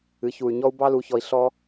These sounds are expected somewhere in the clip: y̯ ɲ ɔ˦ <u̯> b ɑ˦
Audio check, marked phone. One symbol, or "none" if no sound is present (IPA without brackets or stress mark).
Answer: u̯